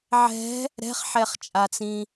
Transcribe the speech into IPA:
ʕ ɛ̤ | ɾ ɛ̤ χ ħ ɛ χ t͡ʃʼ a t͡s ĩ

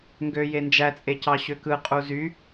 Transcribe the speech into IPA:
ŋ ɡ ø j e n d͡ʒ æ t͡sʼ e c ɑ ɕ ø k ɯ qʼ u z y

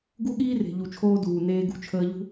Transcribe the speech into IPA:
ɡ u˦ ɠ iː˦ r e̤˨ ʎ u˨ t͡ʃʰ oː˧ d uː˨ n eː˧ ɡ ṳ˧ t͡ʃʰ əː˧ ʎ ṳ˦

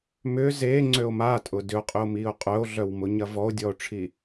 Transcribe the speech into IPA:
m ʏː z eː ŋ͡ǀ ø o̯ m a tʼ ʊ d ʏ o̯ qʼ ʏ o̯ m iː o̯ qʼ œ o̯ ɮ œ w m ʊ ɲ ɐ v ɔ o̯ dʲ ɔ o̯ ʈ͡ʂʰ i

